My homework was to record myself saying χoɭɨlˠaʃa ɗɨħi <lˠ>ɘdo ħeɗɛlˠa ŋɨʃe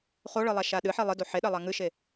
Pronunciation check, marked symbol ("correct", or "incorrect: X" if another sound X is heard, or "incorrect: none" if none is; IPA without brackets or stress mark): correct